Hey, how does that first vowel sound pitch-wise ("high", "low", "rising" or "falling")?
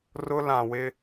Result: high